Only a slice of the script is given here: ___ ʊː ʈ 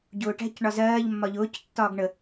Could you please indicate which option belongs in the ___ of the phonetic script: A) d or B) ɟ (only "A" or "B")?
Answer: B